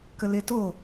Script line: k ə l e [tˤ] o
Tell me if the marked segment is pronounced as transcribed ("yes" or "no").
no